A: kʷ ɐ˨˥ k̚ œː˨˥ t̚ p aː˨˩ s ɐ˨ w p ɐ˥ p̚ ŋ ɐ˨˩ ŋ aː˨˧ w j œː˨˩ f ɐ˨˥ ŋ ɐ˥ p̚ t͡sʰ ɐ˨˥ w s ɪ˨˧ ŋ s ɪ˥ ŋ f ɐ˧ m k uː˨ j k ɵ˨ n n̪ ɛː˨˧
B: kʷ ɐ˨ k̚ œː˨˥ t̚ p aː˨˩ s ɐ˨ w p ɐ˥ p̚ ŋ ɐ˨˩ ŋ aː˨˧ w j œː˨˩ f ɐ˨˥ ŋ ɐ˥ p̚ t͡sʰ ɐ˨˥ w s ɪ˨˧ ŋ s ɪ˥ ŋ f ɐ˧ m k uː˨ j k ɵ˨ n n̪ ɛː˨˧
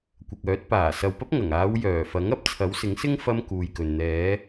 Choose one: B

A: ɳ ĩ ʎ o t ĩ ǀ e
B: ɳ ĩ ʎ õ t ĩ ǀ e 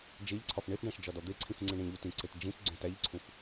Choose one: A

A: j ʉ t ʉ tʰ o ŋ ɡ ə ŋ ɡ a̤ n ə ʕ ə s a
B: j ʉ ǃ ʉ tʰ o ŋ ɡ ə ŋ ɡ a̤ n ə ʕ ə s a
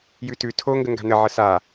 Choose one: A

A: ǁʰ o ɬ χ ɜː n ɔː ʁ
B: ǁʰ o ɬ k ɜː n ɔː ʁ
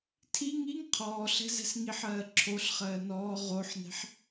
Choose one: A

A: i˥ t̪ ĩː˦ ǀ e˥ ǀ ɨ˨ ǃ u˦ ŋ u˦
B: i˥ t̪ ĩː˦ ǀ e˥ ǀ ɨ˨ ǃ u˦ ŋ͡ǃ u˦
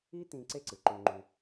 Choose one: B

